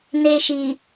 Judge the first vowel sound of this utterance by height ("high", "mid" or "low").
mid